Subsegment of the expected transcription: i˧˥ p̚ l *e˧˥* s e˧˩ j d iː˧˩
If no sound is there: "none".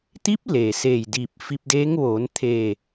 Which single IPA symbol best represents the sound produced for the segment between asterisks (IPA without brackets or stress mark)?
e˩